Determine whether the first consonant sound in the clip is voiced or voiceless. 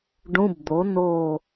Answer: voiced